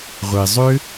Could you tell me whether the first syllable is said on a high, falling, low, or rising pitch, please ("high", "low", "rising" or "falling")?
low